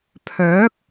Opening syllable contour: rising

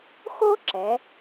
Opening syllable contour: high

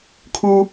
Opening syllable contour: high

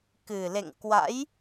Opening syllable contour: low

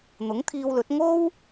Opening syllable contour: rising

